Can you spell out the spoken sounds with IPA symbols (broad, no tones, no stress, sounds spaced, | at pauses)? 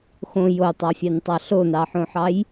x õ j o tˤ ɑ fʲ ɑ n tˤ ɑ ɬ o n ɑ ħ õ ħ ɑ j